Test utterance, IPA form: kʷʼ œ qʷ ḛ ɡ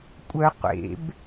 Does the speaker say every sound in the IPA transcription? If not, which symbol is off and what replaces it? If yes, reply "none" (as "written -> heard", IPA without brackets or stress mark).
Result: ɡ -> b